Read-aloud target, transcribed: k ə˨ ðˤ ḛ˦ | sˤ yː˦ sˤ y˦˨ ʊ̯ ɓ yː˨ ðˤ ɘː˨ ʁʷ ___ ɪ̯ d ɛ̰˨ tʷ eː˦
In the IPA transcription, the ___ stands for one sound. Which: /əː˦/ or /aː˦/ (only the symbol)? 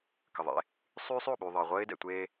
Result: əː˦